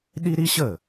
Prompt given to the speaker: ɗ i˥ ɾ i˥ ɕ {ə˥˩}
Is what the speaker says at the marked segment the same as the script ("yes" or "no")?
yes